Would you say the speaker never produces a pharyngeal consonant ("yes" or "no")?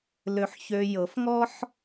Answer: no